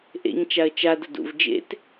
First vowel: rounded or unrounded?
unrounded